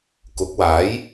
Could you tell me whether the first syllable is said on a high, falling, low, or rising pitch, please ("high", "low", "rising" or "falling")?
rising